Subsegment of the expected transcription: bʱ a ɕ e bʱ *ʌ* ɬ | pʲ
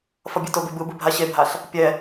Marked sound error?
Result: yes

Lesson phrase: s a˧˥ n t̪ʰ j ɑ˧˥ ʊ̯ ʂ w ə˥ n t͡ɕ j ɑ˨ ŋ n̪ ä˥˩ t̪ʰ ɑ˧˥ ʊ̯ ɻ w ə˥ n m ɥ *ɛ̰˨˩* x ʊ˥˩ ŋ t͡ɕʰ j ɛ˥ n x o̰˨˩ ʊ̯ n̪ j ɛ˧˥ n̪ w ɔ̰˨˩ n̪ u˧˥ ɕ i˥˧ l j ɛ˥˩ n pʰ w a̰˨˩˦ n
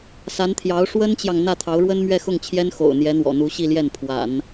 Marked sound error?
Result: yes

